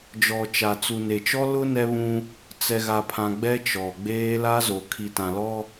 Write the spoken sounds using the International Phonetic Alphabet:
d͡ʒ ɔ˨ t͡ʃ a˨ t͡s u˨ n e˨ t͡ʃ ɔ˦ l ʊ˦ n ɛ˦ β ũ˦ | t͡s ɛ˨ ɣ a˨ pʰ ã˨ ɡ͡b ɛ˦ t͡ʃ ɔ˨ ɡ͡b eː˦ l a˦ z o˨ kʰ i˨ t ã˨ l ɔ˦

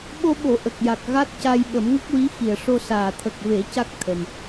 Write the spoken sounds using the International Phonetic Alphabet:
ɓ o˧ ɓ o˨˩˨ ʔ ə˨˩ k̚ j a˨˩ k̚ ɣ a˦˥ t̚ c a˧ j ɓ ə˨˩˦ m ŋ ə˦˥ k̚ w i˧˥ x i˨˩ ə̯ ʂ o˧ s aː˨˩ t̪ʰ ə˨˩ k̚ v e˨˩˦ c a˦˥ k̚ t̪ʰ ə˨˩ m

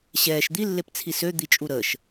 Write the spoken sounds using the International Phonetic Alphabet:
ɕ ɛː ʃ d̪ i lː e p t͡sʰ i s ø d̪ i t͡ʃʼ u ɾ əː ʃ

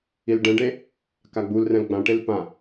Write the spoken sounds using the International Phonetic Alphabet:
i l ɖ ɛ̃ ɖ e | k a ɡ͡b u l r ɛ̃ l ɡ͡b ã ʈ e l p ã

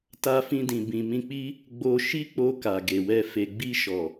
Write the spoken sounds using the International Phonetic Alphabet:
t a˧ f ĩ˧ d ĩ˨ b ĩ˨ m ĩ˧ k͡p i˧ | ɡ͡b o˧ ʃ i˦ k͡p o˧ k a˨ ɡ e˨ w ɛ˧ f e˨ ɡ͡b i˧ ʃ ɔ˨

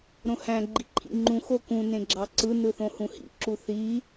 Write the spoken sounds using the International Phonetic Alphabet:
ɾ õ h æ̃ ɡ͡ǃ i ǃʰ ḭ ŋ͡ǃ ũ x o k ũ n ẽ ɡ͡ǁ ɑ ǀ ɯ n ɯ θ õ h ũ h ḭ ǁ u θ i

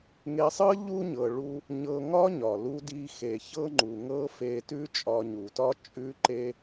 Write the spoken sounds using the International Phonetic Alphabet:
ŋ e˧ sˤ ɤ˥ ʎ u˥ ɲ ɤ˩ ɭ u˧ | ɲ ɤ˧ ŋ ɒ˥ ɲ ɒ˩ l u˧ d i˧ x e˩ ç ɤ˥ ŋ͡ǃ u˩ ŋ ɤ˥ f e˧ t ʉ˥ t͡ʃʼ ɒ˧ ɲ u˩ t ɒ˥ t͡ʃʼ ʉ˥ ǃ e˥

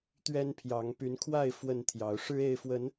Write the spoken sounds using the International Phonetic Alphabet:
t̪ ɥ ɛ˦ n pʰ j ɑ˨˦ ŋ p y˨˦ n kʰ w a˥˨ ɪ̯ f w ə˥˨ n t̪ʰ j ɑ˨˦ ʊ̯ ʂ ɻ̩˦ e˥˨ ɪ̯ f w ə˨˦ n

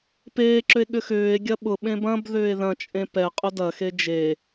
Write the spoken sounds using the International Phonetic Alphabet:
p eː ǁ ʏ e̯ ɠ ʏ x ʏː e̯ ɡʲ ɐ ɓ ʊ ɓ ẽ b ɐ̃ b ð ʏː e̯ ð ɐ̃ t͡ʃʼ ẽ p ɛ qʼ ʊ d ɐ x e d͡ʒ e

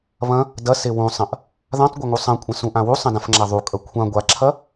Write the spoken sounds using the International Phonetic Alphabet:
β ɐ̃ | d ɐ s e w ũ sˤ ɐ̃ ʔ | ð ã tˤ ɡʷ ɐ ŋ u sˤ ɐ̃ kʷʼ ɐ̃ s ũ ʔ ã w u sˤ ɐ̃ d ã f ŋ͡ǁ a ðˤ u kʼ ɐ kʷʰ ã ɡʷ a ǁʰ ɐ

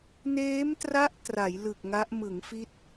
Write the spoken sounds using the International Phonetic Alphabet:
n eː˦˥ m t r a˦˥ ʔ t r a˩˦ j l ɯ˨˩ k̚ ŋ a˦˥ ʔ m ɯ˩˦ ŋ f i˦˥ t̚

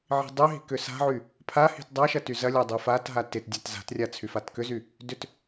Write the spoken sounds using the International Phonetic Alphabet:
ʕ i̤ dˤ y ɦ i̤ k ʏ s a̤ ʕ y | pʰ a h i̤ t dˤ a ʃ ɐ t y z ɐ lʲ a dˤ i f a t ɦ a t ɪ t dʲ a t z a̤ t rʲ a t͡sʰ y f a t k ʏ z y | d ʏ t

